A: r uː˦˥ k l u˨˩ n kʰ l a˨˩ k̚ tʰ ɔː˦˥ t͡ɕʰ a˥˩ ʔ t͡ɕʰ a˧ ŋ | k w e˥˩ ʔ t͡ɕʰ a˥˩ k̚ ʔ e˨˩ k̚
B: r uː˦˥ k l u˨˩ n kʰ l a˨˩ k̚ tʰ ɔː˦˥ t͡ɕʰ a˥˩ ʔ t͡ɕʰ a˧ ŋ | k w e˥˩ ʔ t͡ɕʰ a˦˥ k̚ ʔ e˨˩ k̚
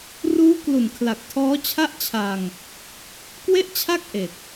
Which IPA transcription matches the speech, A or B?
A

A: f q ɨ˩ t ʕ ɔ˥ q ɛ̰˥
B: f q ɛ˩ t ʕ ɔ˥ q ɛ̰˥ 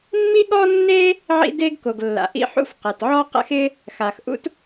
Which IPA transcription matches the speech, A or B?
B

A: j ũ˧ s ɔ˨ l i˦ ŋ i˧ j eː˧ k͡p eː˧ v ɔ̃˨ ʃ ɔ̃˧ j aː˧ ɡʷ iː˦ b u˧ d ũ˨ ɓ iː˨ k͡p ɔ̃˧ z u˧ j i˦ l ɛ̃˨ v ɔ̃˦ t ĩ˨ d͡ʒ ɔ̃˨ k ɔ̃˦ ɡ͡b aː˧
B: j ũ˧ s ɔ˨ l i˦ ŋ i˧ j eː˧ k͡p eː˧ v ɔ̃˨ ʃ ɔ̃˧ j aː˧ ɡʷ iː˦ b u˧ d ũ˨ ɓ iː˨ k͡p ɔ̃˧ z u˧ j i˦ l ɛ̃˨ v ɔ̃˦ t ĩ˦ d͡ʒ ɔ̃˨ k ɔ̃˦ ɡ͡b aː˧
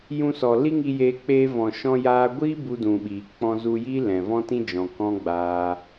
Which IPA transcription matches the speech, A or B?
B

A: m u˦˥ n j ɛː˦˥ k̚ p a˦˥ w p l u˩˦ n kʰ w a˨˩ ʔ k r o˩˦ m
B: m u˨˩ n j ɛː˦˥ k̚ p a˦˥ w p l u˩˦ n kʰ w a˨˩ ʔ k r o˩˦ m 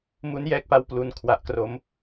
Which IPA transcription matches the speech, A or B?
A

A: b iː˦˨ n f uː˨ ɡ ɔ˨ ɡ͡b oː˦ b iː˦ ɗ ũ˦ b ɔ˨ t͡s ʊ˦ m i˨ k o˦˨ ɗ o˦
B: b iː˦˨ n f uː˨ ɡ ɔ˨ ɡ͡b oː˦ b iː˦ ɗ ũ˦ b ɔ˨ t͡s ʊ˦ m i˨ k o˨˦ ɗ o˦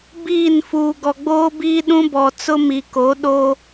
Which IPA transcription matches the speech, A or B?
B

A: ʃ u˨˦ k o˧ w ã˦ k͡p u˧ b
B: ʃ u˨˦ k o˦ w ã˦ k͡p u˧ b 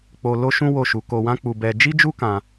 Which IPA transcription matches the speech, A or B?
A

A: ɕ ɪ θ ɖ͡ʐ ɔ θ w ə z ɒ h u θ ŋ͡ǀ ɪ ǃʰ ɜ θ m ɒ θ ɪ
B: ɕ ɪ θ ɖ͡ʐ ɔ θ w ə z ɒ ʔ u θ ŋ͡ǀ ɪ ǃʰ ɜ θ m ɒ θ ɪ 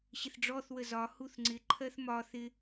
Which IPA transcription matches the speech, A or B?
A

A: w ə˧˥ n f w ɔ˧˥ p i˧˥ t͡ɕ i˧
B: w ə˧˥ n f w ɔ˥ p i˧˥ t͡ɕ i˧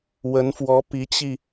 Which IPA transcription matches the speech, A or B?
A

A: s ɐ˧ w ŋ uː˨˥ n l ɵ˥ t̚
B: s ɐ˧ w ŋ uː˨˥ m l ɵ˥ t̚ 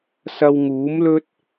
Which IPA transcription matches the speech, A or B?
B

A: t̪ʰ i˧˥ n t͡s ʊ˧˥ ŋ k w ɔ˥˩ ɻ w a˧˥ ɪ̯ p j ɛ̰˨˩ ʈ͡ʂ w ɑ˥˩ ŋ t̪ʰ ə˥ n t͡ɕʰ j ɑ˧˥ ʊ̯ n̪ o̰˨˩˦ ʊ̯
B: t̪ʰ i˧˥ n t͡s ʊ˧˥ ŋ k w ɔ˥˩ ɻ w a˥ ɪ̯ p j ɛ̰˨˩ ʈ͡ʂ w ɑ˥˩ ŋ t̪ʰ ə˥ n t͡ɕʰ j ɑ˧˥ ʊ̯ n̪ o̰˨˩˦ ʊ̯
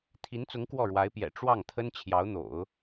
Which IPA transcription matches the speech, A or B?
A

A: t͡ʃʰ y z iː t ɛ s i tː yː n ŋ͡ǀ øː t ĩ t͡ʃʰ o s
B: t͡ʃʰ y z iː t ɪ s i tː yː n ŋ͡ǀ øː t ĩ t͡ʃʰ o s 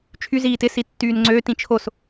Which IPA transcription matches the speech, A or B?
B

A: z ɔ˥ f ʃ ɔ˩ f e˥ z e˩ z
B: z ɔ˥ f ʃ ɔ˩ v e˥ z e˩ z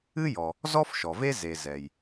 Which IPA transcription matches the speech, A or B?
B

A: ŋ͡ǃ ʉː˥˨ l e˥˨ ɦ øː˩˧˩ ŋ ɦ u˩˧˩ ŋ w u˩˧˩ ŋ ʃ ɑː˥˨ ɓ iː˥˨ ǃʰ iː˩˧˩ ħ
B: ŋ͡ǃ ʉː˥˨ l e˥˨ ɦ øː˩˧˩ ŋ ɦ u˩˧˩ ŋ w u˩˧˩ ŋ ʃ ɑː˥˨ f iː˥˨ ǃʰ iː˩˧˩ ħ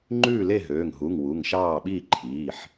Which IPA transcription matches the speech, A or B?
A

